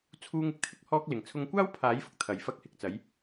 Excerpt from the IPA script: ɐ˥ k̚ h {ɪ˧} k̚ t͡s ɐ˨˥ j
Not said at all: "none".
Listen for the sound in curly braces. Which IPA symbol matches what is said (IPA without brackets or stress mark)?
ɪ˧